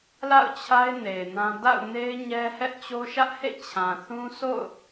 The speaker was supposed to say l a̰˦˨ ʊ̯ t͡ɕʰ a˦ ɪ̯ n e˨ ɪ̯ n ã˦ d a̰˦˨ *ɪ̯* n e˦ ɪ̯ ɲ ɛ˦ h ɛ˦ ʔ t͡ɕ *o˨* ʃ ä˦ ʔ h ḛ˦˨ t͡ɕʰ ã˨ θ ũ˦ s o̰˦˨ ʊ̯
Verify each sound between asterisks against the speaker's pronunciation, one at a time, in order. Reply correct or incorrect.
incorrect, incorrect

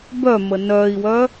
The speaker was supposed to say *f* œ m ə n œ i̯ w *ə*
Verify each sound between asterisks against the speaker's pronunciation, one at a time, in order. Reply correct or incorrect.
incorrect, incorrect

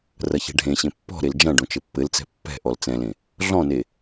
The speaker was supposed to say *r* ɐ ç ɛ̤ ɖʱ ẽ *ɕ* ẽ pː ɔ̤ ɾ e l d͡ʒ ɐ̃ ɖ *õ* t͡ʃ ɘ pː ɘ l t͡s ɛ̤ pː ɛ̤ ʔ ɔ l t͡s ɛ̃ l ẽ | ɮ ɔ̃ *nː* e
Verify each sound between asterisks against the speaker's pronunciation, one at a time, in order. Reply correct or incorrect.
correct, correct, correct, incorrect

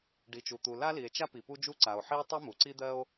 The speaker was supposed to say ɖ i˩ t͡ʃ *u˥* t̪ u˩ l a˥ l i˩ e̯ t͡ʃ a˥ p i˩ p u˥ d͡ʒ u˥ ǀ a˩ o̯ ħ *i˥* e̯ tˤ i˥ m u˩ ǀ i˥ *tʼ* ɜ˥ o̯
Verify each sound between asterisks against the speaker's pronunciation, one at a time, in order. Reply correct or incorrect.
incorrect, correct, incorrect

